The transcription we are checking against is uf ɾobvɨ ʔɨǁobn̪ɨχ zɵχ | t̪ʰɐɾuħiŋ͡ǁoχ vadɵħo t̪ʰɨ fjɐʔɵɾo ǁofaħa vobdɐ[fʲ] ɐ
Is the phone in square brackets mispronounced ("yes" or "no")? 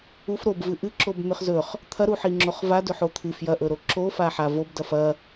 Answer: yes